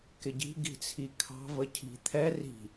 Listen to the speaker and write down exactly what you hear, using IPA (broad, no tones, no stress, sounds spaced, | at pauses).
k ɪ ɟ i̤ ɡ i̤ t͡sʰ i kʰ ɑ̤ v ə cʰ i̤ t̪ʰ ɛ r i̤